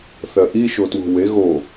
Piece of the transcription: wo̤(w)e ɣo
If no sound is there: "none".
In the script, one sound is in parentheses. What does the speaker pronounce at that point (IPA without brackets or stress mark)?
w